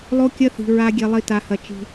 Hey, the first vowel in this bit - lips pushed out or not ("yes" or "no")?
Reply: yes